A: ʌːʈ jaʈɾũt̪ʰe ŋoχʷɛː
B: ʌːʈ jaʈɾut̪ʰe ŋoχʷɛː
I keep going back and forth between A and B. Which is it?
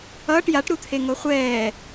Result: B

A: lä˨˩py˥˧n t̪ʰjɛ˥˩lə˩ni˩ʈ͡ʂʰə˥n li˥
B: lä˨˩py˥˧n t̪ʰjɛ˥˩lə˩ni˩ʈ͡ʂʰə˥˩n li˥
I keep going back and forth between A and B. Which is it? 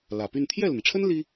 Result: A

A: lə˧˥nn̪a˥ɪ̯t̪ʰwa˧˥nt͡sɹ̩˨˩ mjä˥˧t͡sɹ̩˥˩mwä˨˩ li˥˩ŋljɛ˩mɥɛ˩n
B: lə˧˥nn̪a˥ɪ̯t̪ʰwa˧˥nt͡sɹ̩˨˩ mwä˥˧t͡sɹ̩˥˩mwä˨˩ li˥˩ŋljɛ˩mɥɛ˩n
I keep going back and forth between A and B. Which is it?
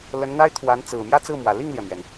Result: A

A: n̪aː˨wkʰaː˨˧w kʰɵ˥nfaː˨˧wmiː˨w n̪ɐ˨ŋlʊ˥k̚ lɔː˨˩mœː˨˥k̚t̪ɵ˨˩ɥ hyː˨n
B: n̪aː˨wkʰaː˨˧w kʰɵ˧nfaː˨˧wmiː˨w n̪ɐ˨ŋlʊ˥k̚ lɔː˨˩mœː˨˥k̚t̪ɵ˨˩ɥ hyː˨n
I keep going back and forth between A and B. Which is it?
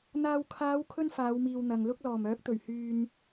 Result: A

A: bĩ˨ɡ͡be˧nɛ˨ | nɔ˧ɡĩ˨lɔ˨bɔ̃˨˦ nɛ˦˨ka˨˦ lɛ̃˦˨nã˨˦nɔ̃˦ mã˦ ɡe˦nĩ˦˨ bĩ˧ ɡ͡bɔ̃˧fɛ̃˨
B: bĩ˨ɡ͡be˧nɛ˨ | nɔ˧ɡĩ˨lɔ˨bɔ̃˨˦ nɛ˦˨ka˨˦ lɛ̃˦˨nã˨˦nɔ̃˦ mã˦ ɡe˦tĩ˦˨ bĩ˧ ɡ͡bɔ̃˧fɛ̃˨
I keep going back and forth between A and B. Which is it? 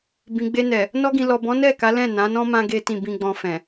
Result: B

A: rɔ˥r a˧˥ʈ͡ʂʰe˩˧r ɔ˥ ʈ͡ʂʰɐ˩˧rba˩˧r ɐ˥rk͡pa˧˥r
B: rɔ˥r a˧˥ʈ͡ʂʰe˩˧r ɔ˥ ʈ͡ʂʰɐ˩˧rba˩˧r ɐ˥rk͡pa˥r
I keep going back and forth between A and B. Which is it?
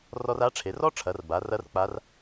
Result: A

